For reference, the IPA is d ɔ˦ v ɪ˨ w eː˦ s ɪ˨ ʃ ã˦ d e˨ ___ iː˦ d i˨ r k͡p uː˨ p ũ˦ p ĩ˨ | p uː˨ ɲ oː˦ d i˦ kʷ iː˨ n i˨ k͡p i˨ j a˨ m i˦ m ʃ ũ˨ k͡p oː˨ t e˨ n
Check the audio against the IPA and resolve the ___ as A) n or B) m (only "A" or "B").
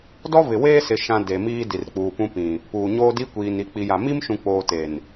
B